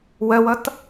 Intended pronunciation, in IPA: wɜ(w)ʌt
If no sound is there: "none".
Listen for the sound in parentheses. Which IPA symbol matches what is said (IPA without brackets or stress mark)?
w